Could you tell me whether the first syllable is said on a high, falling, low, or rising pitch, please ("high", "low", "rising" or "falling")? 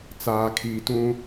low